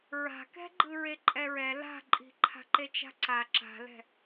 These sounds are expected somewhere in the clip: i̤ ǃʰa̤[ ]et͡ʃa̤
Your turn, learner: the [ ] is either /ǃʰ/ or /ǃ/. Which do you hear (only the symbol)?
ǃ